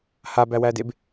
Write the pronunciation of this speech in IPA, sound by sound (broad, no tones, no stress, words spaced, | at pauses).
habæwædeb